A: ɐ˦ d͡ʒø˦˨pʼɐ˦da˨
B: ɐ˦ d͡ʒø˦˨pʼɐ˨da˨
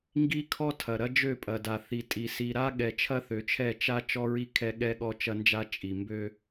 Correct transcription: B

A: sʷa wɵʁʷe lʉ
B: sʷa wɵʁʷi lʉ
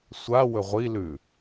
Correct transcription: B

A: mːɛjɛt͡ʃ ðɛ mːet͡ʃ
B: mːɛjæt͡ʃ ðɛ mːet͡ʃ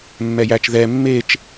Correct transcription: B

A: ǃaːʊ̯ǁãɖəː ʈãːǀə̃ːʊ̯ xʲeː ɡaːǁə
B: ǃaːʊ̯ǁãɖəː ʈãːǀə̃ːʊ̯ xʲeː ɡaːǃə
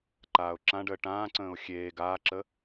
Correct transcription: A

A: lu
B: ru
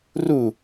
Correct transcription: B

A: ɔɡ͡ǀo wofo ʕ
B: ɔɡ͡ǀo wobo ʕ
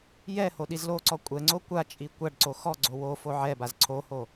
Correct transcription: A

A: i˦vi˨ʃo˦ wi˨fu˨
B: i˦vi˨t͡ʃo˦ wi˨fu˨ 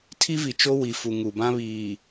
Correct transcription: B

